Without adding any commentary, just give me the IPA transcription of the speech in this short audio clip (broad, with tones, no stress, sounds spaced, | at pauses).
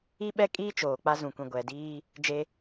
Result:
i˦ ɓ ɛ˦ kʼ iː˦ t͡ʃ oː˨ k͡p a˦ z ũ˨ kʷ ĩ˨ ɡʷ ɛ˨ d iː˦ | d͡ʒ e˦